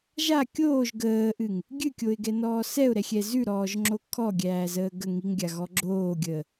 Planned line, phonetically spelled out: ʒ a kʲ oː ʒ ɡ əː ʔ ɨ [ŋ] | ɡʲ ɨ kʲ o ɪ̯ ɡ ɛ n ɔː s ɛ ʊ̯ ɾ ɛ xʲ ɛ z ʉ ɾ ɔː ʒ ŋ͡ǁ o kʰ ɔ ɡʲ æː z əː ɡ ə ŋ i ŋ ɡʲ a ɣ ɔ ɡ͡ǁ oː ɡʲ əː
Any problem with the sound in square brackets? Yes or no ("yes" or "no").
no